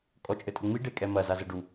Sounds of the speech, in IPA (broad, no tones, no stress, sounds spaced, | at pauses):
kʼ ɔ t͡ʃʼ ɘ tʼ ɘ ŋ͡m i ɖ e kʼ ɛ m ɐ z a z ɘ ɖ u